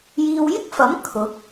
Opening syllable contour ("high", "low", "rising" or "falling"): low